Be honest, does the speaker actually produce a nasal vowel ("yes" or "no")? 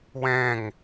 yes